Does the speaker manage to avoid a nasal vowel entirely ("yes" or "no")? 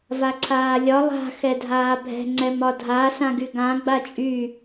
no